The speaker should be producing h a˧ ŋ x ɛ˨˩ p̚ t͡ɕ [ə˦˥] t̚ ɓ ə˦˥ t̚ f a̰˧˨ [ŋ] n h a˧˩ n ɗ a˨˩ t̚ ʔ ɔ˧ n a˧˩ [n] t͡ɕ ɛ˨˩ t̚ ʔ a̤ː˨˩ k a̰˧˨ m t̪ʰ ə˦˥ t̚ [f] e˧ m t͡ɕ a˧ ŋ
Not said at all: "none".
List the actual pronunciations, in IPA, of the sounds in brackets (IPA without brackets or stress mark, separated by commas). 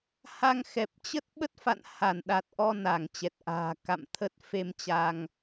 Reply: ə˦˥, none, ŋ, f